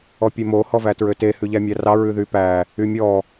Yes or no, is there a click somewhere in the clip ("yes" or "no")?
no